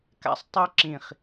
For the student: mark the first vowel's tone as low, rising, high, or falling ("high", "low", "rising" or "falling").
high